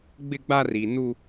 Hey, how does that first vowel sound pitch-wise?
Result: high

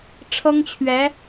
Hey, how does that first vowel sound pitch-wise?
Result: high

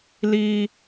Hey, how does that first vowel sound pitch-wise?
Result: high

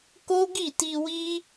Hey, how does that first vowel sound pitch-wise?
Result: high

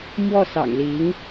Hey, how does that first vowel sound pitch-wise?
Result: falling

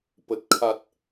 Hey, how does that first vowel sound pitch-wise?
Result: low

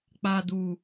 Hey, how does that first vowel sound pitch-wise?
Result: low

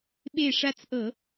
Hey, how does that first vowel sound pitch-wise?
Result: falling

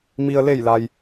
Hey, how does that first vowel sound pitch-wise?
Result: low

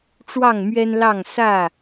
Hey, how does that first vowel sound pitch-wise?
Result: falling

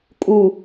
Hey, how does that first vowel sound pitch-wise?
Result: low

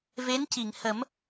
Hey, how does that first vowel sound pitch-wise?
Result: rising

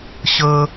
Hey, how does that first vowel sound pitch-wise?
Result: high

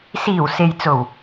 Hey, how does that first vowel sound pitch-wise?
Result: low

